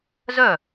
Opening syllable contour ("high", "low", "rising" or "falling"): falling